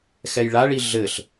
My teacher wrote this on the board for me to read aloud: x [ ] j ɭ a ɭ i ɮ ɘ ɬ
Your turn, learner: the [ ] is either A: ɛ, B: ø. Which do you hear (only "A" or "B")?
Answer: A